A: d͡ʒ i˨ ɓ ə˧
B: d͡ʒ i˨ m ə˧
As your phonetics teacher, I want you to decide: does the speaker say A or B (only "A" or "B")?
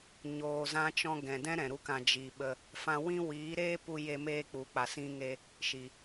A